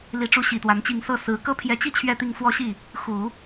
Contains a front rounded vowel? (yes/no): no